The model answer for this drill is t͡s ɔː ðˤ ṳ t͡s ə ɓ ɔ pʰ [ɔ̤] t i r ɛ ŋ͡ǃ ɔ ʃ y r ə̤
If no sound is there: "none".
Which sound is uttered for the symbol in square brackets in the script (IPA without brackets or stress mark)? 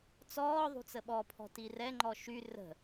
ɔ̤